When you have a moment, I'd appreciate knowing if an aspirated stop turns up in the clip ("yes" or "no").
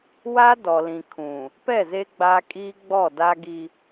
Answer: yes